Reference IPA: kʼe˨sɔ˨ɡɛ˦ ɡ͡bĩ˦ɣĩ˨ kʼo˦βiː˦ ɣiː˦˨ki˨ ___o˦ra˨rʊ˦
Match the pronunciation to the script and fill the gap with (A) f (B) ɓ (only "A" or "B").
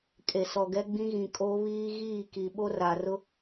B